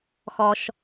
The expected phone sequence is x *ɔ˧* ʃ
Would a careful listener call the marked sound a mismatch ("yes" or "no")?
no